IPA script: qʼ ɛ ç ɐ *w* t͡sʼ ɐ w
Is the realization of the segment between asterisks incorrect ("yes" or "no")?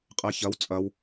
no